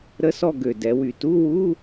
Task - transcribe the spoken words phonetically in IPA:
ɾ ə˧˥ s ɔ˦˨ ɡ ø˨˩ d ɛ˩˧ w y˨˩ t u˧˥˧ w u˧˥˧

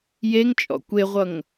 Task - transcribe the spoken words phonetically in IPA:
j e ŋ t͡ʃʼ ɔ̰ kʷ e ʁʷ ʌ ŋ

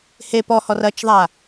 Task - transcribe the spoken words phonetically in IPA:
h e p ɔ h ɔ r ɐ t͡ʃ ðˤ a

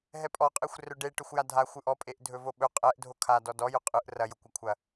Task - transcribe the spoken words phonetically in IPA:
ɦ ɛ pʼ ɔ qʼ e xʷ r ɵ ɖ e ʈ ɵ xʷ j a dʱ a xʷ ɯ ʔ ɔ pʼ e ʔ dʱ ɵ v o ɓ ɵ qʼ ɛ ʔ dʱ o kʰ a d ɔ d ɔ j ʊ qʼ ɯ ʔ r ɐ j ʊ kʷ ɐ kʷʰ ɐ

